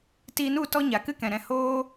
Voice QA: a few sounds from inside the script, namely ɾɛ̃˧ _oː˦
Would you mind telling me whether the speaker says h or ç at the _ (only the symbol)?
h